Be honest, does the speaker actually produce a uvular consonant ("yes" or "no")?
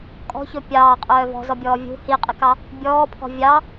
yes